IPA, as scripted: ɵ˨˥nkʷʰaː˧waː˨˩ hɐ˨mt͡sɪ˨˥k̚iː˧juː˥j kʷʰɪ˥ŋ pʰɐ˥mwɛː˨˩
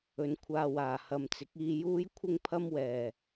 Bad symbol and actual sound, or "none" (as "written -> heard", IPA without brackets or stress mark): none